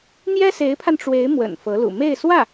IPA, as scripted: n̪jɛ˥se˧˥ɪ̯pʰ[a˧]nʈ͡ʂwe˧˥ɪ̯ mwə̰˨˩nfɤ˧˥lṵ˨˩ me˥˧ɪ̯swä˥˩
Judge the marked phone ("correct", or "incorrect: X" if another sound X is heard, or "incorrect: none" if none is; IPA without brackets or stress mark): correct